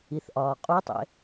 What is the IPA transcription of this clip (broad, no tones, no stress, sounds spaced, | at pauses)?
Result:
i θ ʔ ɒː qʼ u tˤ ḛ